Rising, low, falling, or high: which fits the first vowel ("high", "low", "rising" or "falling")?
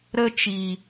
high